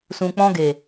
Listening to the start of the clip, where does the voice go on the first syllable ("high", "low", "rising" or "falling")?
low